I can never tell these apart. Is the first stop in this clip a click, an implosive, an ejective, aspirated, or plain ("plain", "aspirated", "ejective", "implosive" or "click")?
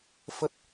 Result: plain